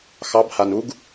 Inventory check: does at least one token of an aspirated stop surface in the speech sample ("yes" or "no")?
no